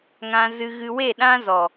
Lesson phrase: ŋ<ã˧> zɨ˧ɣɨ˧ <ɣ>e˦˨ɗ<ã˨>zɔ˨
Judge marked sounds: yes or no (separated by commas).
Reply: yes, no, no